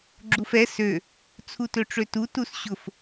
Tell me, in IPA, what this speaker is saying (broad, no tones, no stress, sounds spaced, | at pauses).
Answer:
ɡ͡ǁ u f ɛ s ø | t͡sʰ u t ø ʈ͡ʂ ø t u t u s ɕ ʊ f